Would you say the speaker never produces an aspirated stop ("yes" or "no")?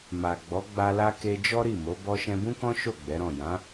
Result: yes